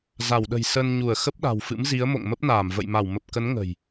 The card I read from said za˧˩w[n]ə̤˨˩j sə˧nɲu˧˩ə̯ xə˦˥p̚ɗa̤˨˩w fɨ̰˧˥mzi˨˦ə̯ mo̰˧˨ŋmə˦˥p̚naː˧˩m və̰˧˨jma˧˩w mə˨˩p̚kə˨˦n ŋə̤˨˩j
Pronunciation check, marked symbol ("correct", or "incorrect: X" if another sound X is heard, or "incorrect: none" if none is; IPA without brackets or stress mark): incorrect: ɗ